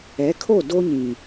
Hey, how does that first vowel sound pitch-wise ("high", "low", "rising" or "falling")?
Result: rising